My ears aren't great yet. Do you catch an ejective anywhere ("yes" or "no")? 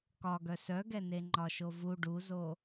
no